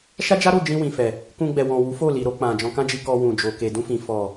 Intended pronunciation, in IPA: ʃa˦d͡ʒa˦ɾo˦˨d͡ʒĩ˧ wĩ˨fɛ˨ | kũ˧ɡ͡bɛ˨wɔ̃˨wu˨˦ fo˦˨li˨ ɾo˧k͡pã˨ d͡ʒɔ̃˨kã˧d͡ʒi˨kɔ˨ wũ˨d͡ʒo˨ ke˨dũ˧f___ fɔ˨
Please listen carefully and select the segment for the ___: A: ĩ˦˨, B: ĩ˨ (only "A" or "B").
B